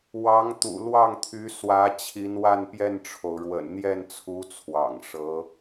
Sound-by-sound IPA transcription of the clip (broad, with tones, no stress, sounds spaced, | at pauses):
w ɑ˧˥ ŋ t̪ ṵ˨˩ l w ɑ˥˩ ŋ t̪ʰ y˧˥ s w ä˧˥ t͡ɕʰ i˧˥ n w a˥˧ n p j ɛ˥˩ n ʈ͡ʂʰ o˩ ʊ̯ ɻ w ə̰˨˩ n n̪ j ɛ˥˩ n t͡sʰ u˧˥ t͡sʰ w ɑ̰˨˩ ŋ ʂ ɤ˧˥